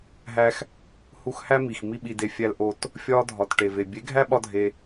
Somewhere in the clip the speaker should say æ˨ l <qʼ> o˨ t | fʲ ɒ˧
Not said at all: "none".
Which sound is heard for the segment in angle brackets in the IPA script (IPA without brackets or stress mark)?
ʔ